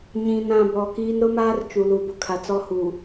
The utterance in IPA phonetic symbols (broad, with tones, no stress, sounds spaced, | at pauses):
ɲ ĩ˨ n ã˨ b ɔ˨ k iː˦ n ɾ ʊ˦ m aː˦ r t͡ʃ u˨ l u˨ b ʊ˦ kʰ a˨ t͡s ɔ˦ h u˨